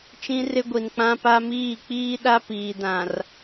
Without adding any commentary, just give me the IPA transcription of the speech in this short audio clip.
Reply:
t͡ʃĩ˦ rɪ˦ɡʷi˨n k͡pã˦pa˦miː˦˨ k͡piː˦ɗa˦ piː˨dã˨r

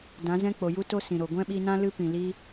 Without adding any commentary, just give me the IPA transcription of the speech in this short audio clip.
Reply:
dã˨˦zɛ̃˦k͡po˨ ju˦to˦ sĩ˨ɾo˨ ɡʷɛ̃˦ɓi˧nã˦ lɨ˦pĩ˨ li˦

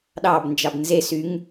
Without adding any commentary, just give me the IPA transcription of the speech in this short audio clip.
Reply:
ɗɑb nd͡ʒɑbnzesyŋ

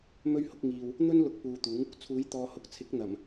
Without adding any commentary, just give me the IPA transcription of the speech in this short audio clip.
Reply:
mɵ˥ɥhʊ˨˥k̚ ŋiː˨w | n̪ɵ˥n lʊ˧k̚puː˨t̪uː˨˥ŋ | t͡sʰuː˨˥jt̪ɔː˨hʊ˨˥k̚t͡sʰɪ˨˥k̚ n̪ɐ˨˩m

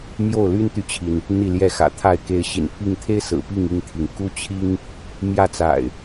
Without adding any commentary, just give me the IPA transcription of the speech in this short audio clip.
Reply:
mjo˥˨ʊ̯ly˦nt̪y˨t͡ɕʰi˩n | n̪i˥˨ ljɛ˥˨xä̰˨˩t̪ʰa˥˨ɪ̯ ke˨˦ɪ̯ɕḭ˨˩npʰi˥˨ŋ t̪ʰe˦ɪ̯ sɹ̩˨˩pi˥˨ŋ i˥˨ŋt̪ʰi˩ŋ ku˦t͡ɕʰi˦ŋ | mjä˥˨t͡sa̰˨˩ɪ̯

